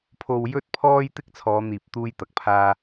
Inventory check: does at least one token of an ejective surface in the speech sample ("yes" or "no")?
no